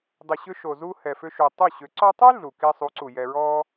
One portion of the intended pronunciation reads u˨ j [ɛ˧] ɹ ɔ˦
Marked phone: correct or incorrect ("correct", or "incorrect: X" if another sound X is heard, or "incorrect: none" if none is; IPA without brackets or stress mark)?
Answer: correct